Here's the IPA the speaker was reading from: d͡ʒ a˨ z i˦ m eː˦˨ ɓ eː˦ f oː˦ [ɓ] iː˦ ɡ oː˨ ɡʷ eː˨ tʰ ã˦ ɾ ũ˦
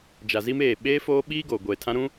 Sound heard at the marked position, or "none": ɓ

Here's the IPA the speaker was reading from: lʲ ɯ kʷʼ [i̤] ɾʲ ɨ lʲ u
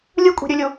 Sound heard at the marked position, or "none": i̤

